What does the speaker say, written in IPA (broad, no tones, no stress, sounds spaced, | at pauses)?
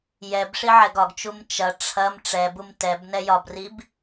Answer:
j ɛ b ʂ i ʕ ɛ ɡ ɒ ɡ t͡ʃ u m t͡ʃ ɐ ʈ͡ʂʰ ɐ m ʈ͡ʂ ɛ b u m t ɛ b n ɛ j ɒ b r i b